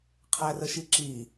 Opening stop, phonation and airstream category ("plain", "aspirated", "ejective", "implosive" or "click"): aspirated